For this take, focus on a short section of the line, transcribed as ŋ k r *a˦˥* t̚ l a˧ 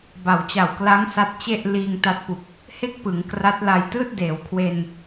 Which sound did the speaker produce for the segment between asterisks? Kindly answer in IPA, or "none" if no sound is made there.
a˦˥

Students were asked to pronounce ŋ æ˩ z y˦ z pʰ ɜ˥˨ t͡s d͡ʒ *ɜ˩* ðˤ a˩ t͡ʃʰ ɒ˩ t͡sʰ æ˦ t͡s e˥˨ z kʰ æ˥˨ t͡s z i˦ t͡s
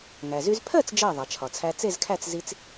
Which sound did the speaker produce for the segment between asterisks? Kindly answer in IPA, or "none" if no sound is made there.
ɜ˧˩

